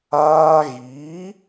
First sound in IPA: aː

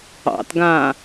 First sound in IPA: ɑ̰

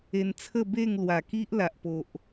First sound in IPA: e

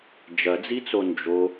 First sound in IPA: d͡ʒ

